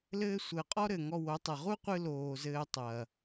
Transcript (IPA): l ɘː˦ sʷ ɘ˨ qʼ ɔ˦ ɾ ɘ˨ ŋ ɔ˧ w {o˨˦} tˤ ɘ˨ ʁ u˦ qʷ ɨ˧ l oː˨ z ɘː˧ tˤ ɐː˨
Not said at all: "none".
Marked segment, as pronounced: o˨˦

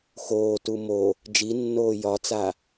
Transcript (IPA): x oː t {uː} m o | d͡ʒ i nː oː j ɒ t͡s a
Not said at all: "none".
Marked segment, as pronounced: u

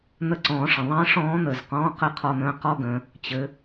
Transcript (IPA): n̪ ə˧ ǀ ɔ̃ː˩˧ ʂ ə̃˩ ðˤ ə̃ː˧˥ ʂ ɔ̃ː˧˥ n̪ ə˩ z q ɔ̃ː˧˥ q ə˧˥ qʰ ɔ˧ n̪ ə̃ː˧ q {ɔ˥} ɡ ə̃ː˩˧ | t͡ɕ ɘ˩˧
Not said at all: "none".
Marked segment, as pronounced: ɔ˥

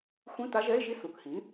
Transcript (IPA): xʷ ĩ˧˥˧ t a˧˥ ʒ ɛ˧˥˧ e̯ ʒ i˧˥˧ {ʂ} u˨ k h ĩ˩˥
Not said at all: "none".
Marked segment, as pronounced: s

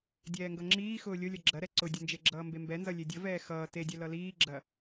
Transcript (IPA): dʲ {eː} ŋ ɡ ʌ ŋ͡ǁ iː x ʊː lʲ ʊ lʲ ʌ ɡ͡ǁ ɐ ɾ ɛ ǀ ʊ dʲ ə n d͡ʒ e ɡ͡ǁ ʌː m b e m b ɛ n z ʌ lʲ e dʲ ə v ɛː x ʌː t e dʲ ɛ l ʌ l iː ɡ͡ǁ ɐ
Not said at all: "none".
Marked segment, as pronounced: ɛː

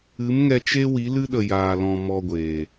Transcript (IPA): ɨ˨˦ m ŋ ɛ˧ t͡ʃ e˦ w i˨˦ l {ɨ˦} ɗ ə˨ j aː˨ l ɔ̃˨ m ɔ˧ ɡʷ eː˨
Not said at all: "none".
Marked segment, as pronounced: ɨ˦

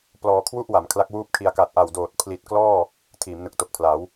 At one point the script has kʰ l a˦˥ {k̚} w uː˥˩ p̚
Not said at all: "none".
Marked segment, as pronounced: k̚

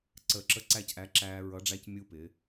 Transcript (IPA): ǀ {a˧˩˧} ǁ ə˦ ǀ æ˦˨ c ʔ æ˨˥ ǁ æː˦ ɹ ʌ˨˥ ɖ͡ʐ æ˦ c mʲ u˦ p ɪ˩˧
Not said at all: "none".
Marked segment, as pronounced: ə˧˩˧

